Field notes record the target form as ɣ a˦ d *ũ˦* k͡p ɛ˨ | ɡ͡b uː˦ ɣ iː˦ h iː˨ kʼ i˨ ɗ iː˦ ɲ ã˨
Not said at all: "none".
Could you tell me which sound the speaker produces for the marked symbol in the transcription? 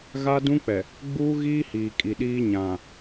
ũ˦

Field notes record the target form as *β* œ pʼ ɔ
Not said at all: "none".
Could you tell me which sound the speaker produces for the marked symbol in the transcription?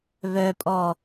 β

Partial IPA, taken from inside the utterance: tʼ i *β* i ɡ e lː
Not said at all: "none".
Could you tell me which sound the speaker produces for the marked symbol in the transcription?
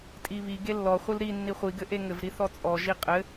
β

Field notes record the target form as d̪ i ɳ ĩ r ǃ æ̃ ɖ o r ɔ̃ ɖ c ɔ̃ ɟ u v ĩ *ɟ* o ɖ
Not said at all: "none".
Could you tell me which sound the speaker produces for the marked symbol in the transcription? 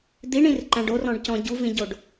ɟ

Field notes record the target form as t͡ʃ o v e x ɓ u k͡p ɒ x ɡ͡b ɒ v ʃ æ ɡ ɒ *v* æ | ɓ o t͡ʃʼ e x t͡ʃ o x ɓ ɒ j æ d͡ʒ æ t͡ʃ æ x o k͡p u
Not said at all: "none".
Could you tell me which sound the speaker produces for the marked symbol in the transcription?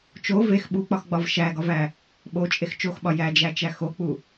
v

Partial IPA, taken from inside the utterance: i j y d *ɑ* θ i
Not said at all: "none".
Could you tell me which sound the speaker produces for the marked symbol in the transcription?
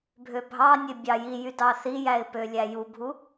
ɑ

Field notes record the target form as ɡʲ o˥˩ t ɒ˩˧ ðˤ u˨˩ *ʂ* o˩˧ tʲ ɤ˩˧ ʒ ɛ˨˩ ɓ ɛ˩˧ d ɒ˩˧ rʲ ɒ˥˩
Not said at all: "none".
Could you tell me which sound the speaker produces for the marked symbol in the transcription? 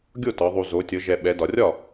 z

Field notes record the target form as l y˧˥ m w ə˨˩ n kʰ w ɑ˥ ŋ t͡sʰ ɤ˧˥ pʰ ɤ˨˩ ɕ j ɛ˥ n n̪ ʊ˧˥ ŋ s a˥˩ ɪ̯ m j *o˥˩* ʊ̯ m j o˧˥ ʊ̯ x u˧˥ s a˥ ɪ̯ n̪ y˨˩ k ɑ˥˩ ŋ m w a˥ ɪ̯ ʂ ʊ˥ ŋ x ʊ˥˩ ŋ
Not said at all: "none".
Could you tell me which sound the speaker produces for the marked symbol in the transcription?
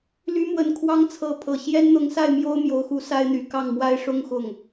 o˥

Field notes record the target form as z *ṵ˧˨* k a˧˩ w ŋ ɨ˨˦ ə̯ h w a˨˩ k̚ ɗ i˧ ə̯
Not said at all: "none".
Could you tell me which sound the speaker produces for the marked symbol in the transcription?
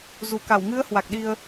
u˧˩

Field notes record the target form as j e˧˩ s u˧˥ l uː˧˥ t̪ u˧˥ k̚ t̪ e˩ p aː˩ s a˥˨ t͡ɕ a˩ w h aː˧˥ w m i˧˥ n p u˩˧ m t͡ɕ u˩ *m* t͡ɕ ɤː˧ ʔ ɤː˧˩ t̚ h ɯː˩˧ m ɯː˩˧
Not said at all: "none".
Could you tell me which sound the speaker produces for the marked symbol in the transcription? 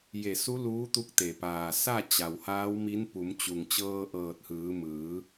ŋ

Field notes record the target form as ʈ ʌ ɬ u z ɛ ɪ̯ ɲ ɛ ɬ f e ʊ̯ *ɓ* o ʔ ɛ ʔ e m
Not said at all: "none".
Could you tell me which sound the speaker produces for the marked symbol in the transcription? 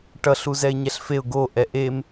ɡ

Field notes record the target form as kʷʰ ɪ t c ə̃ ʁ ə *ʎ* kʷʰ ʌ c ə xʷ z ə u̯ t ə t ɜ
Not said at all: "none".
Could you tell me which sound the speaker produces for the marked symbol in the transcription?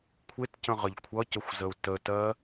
ʎ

